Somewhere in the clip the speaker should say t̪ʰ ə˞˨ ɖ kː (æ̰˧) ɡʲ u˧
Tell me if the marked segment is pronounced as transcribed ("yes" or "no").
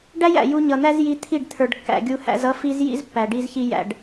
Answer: no